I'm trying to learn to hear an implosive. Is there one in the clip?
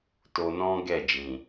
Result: no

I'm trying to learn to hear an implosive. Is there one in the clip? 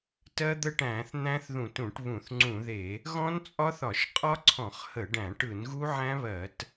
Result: no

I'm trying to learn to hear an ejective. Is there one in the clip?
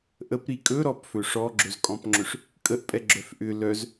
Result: yes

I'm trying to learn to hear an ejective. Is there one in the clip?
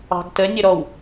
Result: no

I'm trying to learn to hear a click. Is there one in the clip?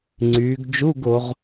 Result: yes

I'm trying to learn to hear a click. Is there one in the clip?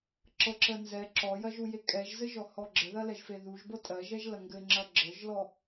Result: yes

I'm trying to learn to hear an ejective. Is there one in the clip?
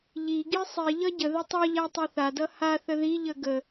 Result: no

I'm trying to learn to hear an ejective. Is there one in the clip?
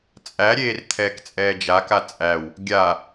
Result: yes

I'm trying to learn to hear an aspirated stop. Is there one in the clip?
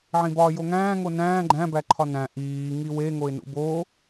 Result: yes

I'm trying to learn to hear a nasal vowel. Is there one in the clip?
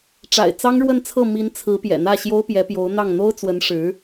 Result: no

